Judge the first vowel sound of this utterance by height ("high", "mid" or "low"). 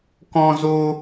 mid